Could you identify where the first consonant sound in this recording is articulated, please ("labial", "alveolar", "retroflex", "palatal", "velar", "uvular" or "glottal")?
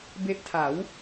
labial